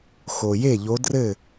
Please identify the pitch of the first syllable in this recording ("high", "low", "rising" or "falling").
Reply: low